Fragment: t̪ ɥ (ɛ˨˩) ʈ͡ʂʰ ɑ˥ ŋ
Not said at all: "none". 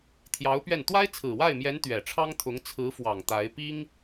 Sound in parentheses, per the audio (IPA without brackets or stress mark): ɛ˨˩